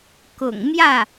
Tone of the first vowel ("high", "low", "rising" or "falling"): low